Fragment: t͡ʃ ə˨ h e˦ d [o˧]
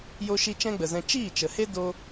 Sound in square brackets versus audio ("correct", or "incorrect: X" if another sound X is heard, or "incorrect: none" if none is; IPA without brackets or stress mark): incorrect: o˦